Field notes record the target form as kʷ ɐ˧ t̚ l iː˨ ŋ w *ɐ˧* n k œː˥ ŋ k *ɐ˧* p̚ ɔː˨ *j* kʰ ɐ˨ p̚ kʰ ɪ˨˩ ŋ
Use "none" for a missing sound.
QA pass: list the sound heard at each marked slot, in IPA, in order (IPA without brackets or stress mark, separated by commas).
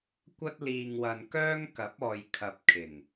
ɐ˨, ɐ˨˥, j